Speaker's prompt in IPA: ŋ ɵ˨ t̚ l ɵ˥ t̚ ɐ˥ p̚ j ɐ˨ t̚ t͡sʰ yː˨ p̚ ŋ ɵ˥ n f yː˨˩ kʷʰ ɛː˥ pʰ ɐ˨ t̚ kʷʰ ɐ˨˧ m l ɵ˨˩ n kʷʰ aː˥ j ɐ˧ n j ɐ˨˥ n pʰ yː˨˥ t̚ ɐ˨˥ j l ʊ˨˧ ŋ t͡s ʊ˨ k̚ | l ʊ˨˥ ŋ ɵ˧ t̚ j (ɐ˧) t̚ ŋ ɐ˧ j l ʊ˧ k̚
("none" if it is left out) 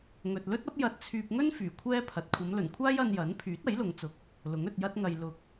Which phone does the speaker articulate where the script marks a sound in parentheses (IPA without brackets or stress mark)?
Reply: ɐ˥